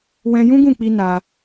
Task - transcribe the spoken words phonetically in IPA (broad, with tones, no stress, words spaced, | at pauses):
wɛ̃˧ jũ˦ ɡũ˦˨k͡pi˧ na˧